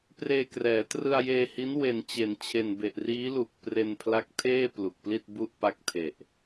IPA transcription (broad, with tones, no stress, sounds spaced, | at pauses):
p r eː˧ k r ɛː˩˦ t r ɯ˧ a̯ j eː˧ h i˦˥ n w e˨˩ n t͡ɕ e˩˦ n t͡ɕʰ e˨˩ n b e˨˩ ʔ r iː˦˥ l u˨˩ k̚ p r e˧ n pʰ l a˦˥ k̚ tʰ eː˥˩ p l u˨˩ k̚ p l i˥˩ t̚ b u˥˩ ʔ p a˥˩ k̚ tʰ e˨˩ ʔ